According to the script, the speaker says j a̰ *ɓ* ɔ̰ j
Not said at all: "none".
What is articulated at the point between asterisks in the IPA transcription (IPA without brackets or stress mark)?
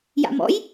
m